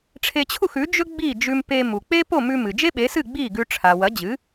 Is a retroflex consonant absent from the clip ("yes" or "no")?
no